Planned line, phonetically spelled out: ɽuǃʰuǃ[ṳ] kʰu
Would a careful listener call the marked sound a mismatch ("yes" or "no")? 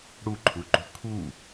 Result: no